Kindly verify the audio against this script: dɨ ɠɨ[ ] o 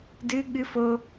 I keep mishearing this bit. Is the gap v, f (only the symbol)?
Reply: f